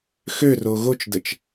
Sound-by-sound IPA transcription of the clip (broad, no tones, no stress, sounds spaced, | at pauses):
x ø r o ɣ o t͡ʃ d ə t͡ʃ